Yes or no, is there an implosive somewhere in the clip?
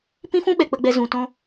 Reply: yes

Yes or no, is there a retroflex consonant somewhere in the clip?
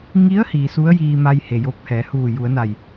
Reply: no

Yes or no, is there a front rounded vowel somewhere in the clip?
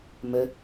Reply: no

